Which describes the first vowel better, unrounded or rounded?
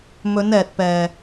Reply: rounded